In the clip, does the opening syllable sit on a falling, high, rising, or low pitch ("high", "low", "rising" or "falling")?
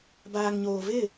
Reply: low